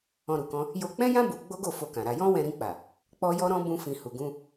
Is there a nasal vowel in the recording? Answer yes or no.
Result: yes